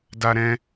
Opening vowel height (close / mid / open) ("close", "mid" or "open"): open